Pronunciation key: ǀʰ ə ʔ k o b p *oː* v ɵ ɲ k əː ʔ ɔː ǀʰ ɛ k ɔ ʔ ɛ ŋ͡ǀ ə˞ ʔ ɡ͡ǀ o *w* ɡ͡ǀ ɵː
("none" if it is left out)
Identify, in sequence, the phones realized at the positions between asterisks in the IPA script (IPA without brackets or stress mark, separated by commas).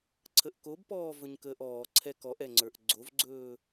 ɔː, v